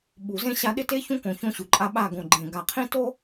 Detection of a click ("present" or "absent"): present